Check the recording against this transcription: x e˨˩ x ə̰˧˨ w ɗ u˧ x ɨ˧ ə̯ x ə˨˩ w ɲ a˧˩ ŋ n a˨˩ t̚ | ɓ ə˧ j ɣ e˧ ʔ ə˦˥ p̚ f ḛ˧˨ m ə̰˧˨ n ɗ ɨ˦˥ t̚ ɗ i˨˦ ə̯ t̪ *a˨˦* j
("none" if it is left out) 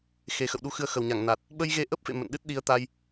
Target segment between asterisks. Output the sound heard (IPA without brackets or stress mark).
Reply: a˧